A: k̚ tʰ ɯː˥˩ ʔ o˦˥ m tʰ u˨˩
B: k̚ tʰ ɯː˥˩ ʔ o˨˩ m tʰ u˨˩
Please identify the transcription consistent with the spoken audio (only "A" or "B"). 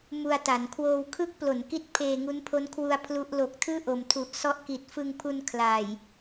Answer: B